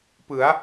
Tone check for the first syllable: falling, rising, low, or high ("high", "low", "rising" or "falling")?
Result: rising